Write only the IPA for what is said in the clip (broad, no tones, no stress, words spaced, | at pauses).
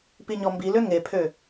piɲɔmbilø ŋepʰø